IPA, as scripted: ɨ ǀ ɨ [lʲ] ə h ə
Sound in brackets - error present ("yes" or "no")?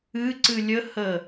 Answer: no